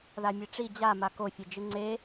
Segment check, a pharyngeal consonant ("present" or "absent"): absent